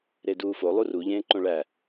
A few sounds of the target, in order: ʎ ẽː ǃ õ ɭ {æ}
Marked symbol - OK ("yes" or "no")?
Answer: yes